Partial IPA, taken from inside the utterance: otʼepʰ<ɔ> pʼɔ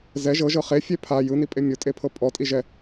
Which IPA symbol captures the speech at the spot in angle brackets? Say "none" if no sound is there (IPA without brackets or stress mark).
ɤ